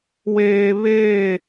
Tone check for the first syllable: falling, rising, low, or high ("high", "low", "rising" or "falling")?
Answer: low